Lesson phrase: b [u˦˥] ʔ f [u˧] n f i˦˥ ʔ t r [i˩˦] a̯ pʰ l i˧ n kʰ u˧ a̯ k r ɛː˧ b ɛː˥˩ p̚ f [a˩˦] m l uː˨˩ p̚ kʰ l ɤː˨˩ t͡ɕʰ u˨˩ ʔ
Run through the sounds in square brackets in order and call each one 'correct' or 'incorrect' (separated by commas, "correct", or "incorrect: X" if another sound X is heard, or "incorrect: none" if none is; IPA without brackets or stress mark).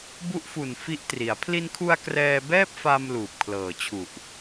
correct, incorrect: u˨˩, correct, incorrect: a˧